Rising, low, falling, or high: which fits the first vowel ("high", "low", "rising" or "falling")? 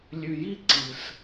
low